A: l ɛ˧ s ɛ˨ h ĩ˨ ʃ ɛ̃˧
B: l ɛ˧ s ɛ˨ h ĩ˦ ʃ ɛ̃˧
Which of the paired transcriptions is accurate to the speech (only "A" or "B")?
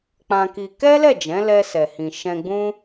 A